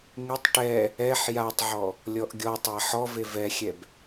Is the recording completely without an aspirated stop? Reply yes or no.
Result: yes